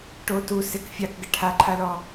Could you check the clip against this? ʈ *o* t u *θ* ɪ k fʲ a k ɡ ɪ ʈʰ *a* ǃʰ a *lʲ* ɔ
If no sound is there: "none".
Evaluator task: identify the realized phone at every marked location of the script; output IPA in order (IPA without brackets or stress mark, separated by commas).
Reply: o, s, a, l